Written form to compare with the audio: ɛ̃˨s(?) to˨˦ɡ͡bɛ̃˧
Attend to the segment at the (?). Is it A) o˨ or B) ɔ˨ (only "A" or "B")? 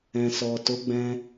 B